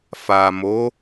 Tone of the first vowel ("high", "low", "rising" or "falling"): low